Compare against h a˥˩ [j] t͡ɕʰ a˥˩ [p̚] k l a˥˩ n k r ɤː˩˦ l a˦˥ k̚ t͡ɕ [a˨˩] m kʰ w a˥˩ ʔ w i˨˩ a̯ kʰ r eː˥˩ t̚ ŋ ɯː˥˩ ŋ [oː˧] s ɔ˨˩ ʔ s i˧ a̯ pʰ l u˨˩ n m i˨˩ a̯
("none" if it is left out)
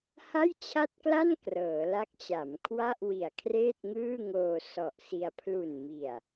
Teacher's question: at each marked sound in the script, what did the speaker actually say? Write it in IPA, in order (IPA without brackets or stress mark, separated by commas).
j, t̚, a˩˦, oː˧